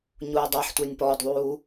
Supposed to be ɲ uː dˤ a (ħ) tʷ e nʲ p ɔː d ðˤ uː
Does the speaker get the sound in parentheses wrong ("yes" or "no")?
no